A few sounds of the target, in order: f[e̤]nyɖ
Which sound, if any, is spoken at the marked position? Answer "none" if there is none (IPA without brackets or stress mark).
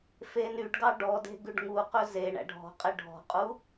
e